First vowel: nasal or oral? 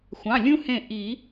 nasal